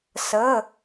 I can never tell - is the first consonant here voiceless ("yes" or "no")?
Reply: yes